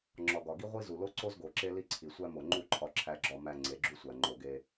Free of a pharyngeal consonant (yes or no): yes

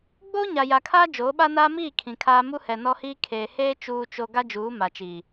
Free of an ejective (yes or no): yes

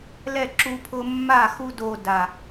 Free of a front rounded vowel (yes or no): yes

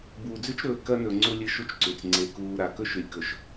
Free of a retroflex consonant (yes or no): yes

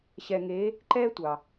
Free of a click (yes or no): no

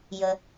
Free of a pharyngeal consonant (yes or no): yes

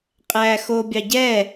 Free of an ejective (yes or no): no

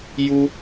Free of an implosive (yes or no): yes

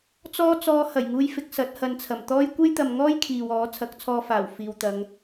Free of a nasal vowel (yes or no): yes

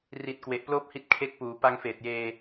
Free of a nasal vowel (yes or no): yes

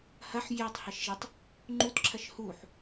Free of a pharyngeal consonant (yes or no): no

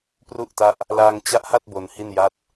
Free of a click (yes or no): yes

